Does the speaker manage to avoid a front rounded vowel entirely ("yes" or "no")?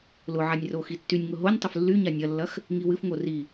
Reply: no